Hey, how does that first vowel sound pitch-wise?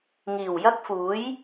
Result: low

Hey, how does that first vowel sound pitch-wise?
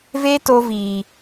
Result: high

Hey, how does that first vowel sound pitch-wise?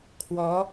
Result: rising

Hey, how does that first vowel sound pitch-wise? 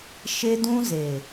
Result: high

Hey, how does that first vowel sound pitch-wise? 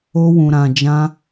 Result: high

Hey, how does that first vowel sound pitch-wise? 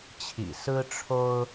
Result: low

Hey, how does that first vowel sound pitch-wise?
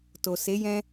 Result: low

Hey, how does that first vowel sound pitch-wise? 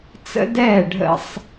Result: high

